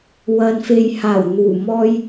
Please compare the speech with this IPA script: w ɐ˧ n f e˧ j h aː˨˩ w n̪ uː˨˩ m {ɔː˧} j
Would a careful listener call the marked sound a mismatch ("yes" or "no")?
no